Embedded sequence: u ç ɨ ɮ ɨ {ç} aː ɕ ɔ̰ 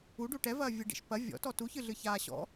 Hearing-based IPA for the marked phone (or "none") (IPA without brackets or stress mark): ç